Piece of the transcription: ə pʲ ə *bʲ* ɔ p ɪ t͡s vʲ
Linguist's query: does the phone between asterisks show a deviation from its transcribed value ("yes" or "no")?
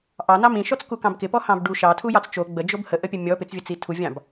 yes